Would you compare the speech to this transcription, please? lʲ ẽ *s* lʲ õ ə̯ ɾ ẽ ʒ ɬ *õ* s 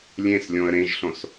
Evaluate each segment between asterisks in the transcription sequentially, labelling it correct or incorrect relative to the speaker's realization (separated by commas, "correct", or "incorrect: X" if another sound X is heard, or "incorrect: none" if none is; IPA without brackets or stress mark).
correct, correct